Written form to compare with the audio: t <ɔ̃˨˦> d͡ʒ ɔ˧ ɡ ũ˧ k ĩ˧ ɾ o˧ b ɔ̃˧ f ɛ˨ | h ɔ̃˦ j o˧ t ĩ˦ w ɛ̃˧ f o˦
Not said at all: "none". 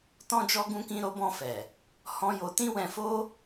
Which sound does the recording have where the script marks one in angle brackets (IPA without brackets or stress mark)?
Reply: ɔ̃˧